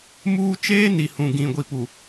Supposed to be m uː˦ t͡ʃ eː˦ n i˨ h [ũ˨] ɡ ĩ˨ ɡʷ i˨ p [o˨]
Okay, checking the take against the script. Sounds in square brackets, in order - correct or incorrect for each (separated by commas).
correct, incorrect